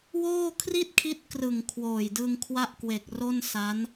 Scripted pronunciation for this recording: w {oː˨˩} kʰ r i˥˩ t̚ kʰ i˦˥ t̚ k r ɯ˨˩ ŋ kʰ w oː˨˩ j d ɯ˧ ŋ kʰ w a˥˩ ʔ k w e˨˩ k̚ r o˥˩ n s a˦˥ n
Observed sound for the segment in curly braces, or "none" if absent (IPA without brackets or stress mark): oː˥˩